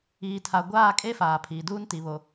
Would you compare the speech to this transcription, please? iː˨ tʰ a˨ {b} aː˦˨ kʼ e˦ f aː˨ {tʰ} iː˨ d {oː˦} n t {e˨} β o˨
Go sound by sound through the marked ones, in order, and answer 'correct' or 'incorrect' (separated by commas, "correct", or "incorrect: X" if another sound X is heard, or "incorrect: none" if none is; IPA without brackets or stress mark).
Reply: incorrect: ɡʷ, incorrect: pʰ, incorrect: uː˦, incorrect: i˨